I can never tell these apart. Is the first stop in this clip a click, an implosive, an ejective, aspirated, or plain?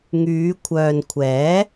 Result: aspirated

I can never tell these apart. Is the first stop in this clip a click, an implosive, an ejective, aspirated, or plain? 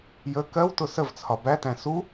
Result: plain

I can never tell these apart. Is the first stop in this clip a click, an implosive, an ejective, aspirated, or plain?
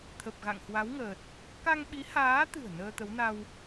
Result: aspirated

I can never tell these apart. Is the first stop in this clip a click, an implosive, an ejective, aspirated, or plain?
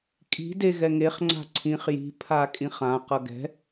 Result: ejective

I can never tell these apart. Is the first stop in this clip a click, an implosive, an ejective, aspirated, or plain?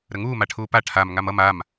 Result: aspirated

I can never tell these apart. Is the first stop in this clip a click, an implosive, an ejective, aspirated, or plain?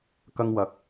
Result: plain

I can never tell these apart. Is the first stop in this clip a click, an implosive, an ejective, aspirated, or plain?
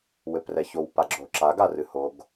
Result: plain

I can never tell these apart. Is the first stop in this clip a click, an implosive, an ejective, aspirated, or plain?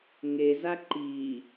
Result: click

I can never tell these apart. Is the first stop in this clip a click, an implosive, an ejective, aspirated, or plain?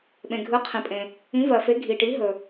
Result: implosive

